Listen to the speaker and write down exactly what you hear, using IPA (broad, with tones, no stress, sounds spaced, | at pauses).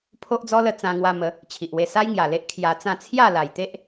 pʰ o˦ ʔ d͡z ɔ˦ l ə˧ t͡s ã˧ ŋ w a˧ m ə˨˦ | t͡ɕʰ i˨ ʔ w e˧ s a˦ j ŋ j a˨˩ l e˦ ʔ kʰ j a˧ t͡s ã˥˧ t͡sʰ j a˥˧ l a˨˩ j t̪ e˦ ʔ